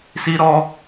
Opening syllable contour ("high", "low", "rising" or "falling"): high